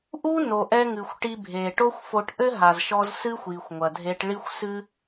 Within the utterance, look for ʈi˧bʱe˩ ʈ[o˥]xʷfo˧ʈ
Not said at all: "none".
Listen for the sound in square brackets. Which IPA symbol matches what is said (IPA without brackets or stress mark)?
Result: o˥